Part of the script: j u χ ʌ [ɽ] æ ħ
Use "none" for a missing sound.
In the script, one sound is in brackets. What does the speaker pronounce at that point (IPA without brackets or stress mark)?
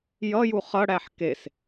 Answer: ɽ